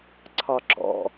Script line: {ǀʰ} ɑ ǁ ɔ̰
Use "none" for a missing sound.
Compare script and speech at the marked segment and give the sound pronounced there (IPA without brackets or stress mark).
ǀʰ